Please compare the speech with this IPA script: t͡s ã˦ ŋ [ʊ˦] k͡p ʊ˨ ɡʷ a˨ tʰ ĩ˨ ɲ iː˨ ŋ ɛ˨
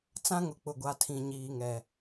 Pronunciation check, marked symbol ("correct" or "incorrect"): incorrect